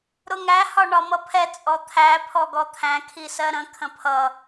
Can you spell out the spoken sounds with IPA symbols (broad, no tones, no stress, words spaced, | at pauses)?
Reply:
ɾʊŋæ hɒɳɒmʌpʰɛ t͡sʼɔt̪ʰæ pʰɔɡɔt̪ʰæ̃ kʰisɜɾə̃ kʰə̃pʰʌ